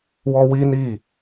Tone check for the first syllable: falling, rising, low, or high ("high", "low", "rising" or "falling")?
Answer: high